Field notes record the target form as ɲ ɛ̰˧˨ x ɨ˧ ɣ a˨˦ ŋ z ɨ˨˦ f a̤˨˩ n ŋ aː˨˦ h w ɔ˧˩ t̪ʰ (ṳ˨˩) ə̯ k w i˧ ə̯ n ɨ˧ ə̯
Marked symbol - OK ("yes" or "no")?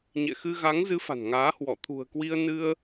yes